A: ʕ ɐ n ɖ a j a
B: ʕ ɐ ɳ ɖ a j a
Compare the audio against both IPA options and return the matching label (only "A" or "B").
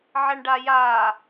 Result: B